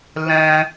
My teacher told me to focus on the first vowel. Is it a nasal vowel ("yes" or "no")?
yes